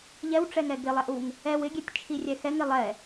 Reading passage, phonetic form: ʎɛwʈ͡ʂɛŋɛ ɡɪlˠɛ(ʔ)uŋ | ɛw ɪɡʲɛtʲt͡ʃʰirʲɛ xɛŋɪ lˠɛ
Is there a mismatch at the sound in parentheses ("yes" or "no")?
no